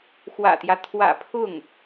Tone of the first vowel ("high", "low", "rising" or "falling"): low